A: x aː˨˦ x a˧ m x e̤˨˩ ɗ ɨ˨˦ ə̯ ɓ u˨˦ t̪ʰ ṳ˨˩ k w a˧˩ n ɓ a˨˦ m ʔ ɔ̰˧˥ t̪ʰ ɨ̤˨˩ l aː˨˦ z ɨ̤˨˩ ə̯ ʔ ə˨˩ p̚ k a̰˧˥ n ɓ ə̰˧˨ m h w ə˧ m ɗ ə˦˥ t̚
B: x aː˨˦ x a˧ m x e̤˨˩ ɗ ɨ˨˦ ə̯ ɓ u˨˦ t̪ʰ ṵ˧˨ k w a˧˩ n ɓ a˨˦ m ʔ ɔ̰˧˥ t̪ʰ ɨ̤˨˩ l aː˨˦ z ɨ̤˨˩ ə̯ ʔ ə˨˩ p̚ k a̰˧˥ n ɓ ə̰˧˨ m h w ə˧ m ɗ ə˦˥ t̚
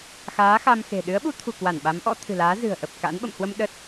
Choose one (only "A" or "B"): A